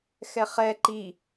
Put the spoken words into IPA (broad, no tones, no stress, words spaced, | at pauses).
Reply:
xɛχɛ ǃi